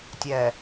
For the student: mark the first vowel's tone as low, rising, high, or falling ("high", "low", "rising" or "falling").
low